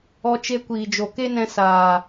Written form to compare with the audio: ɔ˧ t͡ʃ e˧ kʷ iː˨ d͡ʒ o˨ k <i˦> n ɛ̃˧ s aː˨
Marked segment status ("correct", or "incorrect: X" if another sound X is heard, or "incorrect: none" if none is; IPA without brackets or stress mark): incorrect: e˦